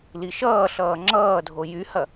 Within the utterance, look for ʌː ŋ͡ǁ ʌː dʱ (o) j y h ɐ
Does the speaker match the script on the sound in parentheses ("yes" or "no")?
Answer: yes